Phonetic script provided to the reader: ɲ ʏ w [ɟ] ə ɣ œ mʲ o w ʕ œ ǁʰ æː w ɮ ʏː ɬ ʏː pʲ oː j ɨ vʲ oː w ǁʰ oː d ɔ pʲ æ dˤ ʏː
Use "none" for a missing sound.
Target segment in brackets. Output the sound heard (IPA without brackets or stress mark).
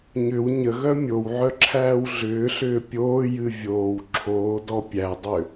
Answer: ɲ